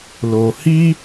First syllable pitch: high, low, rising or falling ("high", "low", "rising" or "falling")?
low